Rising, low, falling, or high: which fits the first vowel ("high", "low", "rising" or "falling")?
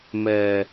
low